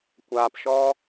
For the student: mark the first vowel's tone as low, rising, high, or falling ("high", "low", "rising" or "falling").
low